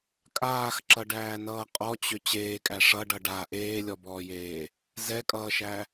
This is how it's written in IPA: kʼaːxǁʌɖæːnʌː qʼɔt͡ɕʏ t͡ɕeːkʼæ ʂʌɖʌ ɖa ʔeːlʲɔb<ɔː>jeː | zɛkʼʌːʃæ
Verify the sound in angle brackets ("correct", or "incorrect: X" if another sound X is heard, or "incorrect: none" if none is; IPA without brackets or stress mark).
correct